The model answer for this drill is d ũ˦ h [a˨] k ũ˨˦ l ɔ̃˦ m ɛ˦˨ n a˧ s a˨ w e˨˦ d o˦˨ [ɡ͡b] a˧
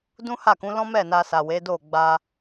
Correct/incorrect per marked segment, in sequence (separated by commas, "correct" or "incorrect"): incorrect, correct